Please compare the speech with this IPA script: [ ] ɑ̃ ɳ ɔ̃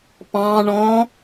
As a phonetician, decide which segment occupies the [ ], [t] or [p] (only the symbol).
p